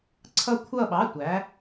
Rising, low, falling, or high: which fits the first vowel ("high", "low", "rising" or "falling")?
falling